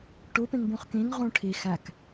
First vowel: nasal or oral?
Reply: oral